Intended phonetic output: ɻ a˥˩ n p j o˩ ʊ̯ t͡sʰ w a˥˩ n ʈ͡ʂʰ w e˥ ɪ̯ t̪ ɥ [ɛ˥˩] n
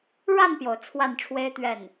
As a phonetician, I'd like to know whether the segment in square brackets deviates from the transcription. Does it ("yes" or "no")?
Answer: no